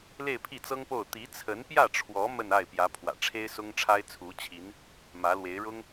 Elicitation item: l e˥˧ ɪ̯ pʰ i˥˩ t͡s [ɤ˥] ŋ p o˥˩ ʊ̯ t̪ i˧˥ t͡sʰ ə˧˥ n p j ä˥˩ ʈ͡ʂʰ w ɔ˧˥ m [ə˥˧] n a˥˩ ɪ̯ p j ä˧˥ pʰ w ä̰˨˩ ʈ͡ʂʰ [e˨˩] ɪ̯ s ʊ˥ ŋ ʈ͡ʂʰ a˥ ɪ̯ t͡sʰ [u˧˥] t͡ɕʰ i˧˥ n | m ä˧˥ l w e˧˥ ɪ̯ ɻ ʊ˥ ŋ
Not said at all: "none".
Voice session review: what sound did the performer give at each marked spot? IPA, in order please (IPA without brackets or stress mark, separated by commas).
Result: ɤ˥, ə˥˧, e˥, u˧˥